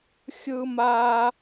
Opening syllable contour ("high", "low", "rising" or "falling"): high